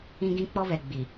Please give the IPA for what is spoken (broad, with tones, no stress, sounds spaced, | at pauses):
ĩ˦ ɡ ĩ˦ k͡p ɔ˦ β ɛ˨ ɡ͡b i˨